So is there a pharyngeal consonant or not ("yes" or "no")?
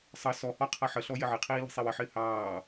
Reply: yes